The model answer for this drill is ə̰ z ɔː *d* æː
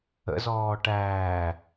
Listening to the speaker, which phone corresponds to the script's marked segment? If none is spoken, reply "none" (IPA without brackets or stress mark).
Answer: ʈ